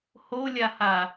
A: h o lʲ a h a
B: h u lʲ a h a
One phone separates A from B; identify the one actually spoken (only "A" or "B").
A